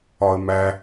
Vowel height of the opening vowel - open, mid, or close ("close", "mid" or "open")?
open